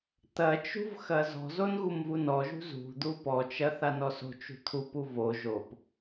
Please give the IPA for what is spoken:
t̪ɐt͡ʃṳv xɐzɔ̤zon ɣumvunɔʒṳ zṳd̪u pɔt͡ʃɐ θanɔso̤t͡ʃṳ t̪ʰupu vo ʒop

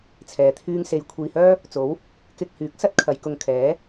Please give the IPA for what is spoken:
t͡sʰɛː˨˧t̪ʰyː˥ŋse˧j kʷʰiː˧hœː˥ | t͡so˨˥w | kɪ˧k̚hyː˨˥k̚sɐ˥t̚ kʰɐ˨˧jkʊ˧ŋkʰɛː˨˥

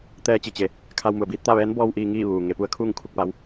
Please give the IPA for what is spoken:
t̪ɛː˧t͡ɕi˩t͡ɕe˩˧ | kʰa˧wmu˩ə̯biː˧˥t̚t̪a˥˨ ʋɛː˧˥nbɔː˧w ʔiː˧ŋiː˥˨ ʋuː˩ ŋe˩˧pu˧˥ə̯kʰuː˥˨ŋ kʰu˥˨k̚pa˧˥w

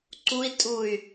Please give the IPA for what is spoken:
ǀui̯ tʼuy̯

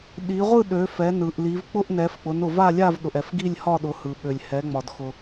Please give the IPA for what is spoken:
ɗi˩˧ʁʷɯ˥˧ ɗø˩˧fɛ˩˧nɯ˩ʔli˩˧v k͡pʊ˥˧ʔnɛ˩˧fk͡pʊ˩˧nʊ˩ va˥˧lʲa˥˧v ɗʊ˩ʔɛ˩f ɡi˥˧lʲhɒ˥˧ ɗʊ˩˧hɯ˩ɓø˩lʲ hɛ˩˧ŋ͡mɒ˩dxʊ˩

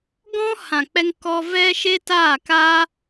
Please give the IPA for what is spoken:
ɡɔ̃˦hã˨k͡pɛ˧ŋ kɔ˧ vɛ˧ ʃe˦taː˦˨ka˦

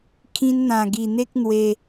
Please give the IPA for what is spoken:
kʰĩ˧nn̪ã˨˩ɡi˨˩n̪e˦k̚ n̪we˧

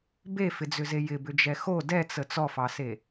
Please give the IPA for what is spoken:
befɪd͡zʏze jɪbʏd͡ʒɛ xo dɛt͡sə t͡sɔfɑse

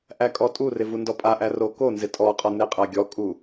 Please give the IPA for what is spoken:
ʔækʼɔtʼurɪ vundɔpʼaʔæ rokonzɪ tʼɔqʼɔ neqʼaɡʲɔkʼu

